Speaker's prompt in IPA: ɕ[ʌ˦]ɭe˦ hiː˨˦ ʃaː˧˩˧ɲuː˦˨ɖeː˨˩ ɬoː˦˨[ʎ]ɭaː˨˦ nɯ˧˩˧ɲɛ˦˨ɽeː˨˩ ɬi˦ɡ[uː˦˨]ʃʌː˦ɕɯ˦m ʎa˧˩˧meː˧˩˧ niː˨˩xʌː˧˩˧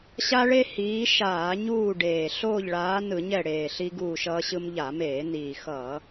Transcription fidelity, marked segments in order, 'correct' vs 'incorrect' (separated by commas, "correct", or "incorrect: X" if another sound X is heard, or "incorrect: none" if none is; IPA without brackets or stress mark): incorrect: a˦, correct, correct